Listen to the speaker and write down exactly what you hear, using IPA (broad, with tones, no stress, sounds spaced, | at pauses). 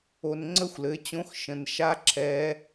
o˨ n ŋ͡ǀ ə˥˧ xʷ l ɘ˩˥ t͡ɕ õ˧˥ x ʃ ə̃˨ n ʃ a˥ ǁʰ ɛ˧˥